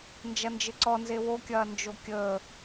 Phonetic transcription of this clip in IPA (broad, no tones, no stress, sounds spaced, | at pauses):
n d͡ʒ ɐ n d͡ʒ ɘ ǀ ɔ n z e w o kʲ ɐː n d͡ʒ o kʲ əː